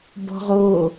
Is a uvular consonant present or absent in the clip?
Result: present